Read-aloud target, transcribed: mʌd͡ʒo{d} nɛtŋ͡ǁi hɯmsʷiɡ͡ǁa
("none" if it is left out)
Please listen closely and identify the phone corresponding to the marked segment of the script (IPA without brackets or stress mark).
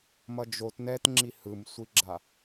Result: t